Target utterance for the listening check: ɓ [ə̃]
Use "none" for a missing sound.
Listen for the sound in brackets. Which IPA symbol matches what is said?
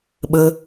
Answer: ə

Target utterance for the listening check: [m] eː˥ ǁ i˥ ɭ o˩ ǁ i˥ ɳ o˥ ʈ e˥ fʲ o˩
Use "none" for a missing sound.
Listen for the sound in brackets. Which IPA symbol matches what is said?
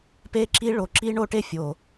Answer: p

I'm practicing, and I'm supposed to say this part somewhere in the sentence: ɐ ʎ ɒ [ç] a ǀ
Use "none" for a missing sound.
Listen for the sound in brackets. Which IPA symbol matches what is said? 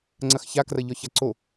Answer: ç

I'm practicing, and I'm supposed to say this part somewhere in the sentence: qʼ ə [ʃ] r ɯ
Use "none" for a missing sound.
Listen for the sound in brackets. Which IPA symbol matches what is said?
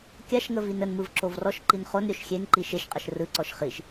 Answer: ʃ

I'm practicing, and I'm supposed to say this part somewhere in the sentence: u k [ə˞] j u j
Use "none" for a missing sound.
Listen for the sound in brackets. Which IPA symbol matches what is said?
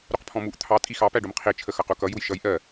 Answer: ʌ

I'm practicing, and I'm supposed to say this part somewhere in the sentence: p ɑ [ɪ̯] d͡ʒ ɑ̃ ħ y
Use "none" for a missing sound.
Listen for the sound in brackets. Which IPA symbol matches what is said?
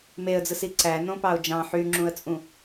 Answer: ʊ̯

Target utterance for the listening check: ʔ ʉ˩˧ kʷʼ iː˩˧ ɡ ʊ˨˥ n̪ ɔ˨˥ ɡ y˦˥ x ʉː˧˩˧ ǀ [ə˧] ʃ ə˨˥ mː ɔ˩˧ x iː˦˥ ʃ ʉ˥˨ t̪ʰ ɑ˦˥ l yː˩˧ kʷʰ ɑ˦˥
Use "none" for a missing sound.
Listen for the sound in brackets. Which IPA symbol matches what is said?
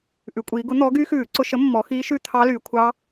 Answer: ʊ˧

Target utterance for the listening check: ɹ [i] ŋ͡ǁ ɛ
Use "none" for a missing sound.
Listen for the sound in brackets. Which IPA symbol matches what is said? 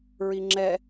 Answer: i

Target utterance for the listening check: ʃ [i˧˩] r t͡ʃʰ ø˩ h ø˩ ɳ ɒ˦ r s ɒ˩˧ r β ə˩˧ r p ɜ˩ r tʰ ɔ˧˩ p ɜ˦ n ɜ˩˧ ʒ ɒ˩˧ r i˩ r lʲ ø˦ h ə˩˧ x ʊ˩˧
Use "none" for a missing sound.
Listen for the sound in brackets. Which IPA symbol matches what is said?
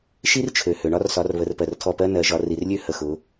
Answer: i˦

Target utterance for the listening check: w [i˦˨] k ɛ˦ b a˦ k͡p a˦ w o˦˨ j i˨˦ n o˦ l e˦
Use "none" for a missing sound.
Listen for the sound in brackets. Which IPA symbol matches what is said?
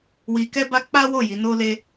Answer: i˧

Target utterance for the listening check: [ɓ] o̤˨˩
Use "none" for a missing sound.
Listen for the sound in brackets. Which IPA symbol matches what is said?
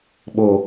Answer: ɓ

